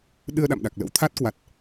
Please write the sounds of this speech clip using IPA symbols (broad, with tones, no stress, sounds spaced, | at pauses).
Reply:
ɗ ɨ˧ ə̯ ɗ a̰˧˨ m ɗ a˨˩ k̚ l ə̰˧˥ w t̪ʰ a˦˥ t̚ k w a˨˩ t̚